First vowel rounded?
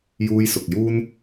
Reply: yes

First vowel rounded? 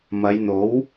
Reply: no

